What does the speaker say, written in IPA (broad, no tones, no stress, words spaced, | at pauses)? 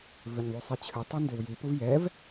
vʏɲðˤusˤit͡ɕʰʏ tˤundʏwji puvjɛv